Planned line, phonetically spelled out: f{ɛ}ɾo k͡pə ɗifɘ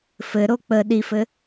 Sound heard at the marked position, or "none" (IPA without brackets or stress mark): ɘ